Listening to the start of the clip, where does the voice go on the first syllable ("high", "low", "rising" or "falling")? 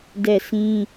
falling